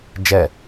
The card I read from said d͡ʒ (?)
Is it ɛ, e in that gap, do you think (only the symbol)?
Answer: ɛ